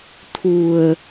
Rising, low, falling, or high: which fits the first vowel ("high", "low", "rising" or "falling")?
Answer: low